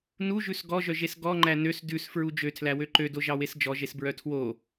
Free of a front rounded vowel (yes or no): no